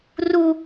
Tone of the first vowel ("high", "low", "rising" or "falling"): high